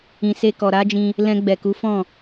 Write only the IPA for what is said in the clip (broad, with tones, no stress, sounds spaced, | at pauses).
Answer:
ĩ˨ s e˧ k ɔ˨ ɾ a˨˦ d͡ʒ ĩ˧ | l ɛ̃˧ ɡ͡b ɛ˨ k u˨˦ f ɔ̃˦˨